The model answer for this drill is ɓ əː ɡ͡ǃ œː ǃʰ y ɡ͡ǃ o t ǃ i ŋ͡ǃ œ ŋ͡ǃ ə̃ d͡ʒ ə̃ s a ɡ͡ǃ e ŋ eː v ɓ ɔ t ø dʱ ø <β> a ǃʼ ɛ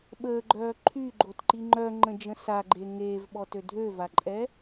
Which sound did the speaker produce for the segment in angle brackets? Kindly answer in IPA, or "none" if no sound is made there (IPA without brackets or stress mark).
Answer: v